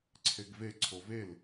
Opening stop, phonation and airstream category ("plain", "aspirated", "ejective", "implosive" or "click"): click